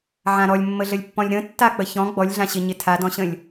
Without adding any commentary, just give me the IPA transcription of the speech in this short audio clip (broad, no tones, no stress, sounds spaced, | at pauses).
ʕ ã ɾ ɔ lʲ mː ə ɮ ə lʲ pː ɔ̃ lʲ ɾ ə̃ tː a k͡p ə ç ɔ̃ ɡ͡b ɔ lʲ ɮ ã ɕ ɪ ɲ ɪ tʰ a d ɔ̃ ɕ ə̃ lʲ